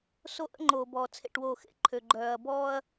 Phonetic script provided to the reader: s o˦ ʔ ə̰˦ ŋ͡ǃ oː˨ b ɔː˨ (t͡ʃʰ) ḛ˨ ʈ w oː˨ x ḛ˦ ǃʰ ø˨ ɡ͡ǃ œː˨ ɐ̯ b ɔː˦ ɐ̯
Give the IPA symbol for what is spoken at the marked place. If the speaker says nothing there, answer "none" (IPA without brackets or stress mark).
t͡sʰ